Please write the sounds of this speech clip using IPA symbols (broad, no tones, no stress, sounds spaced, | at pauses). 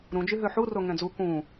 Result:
ɾ ũ d͡ʒ y ɦ ø ħ u r o ŋ ɛ̃ d͡z u k ũ